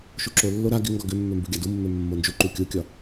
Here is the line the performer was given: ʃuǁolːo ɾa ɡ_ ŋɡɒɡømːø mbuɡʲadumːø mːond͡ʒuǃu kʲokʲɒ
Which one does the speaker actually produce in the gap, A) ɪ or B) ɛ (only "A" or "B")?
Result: A